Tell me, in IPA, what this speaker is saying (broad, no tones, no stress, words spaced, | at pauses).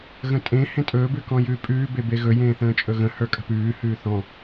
ɣə̃tʼẽ hẽtʼɵː bʉkɔ̃jʉːpʼʉː bebeɣɵ jẽːθə̃ːt͡ʃʼɵɣə̃ hə˞kʼə̤pʉː hʉːθɔ̃